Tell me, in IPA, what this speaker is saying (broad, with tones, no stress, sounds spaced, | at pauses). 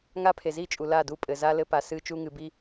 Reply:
ŋ a˦ pʰ e˨ z i˦˨ t͡ʃʼ u˨ l a˦˨ d u˦˨ pʼ ɘ˨ z a˦ l ɘ˦ p a˨ s ɨː˦ t͡ʃ u˦ ŋ ɨ˨ b i˦